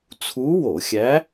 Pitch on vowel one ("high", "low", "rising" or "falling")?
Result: rising